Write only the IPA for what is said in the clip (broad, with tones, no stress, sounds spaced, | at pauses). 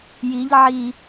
j i˨˦ ʎ ʕ i˨